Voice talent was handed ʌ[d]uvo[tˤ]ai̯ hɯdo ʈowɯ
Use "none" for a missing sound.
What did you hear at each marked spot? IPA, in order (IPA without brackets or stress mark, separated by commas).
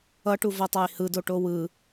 ʈ, tˤ